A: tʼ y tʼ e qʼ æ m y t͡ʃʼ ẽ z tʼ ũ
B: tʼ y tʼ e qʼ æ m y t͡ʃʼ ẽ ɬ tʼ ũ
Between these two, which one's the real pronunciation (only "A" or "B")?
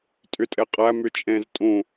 A